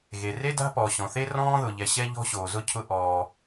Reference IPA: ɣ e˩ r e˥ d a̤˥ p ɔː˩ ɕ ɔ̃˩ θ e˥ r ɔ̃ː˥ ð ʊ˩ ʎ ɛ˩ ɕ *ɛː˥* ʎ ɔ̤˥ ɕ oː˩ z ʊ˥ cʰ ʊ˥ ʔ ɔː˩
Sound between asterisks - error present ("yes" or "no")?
yes